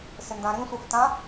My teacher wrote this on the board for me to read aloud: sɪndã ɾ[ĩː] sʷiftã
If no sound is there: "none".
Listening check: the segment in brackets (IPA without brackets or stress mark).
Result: ĩ